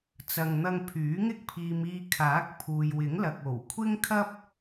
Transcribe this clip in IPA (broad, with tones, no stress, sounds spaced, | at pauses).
t͡s ɐ˨ ŋ n̪ ɐ˧ ŋ pʰ yː˨˥ ŋ ɪ˥ k̚ pʰ iː˨ m iː˧ kʰ aː˨˥ k̚ pʰ uː˨ j w ɪ˨˥ ŋ l ɐ˨ k̚ o˨˩ w kʷʰ ɪ˥ ŋ kʰ ɐ˥ p̚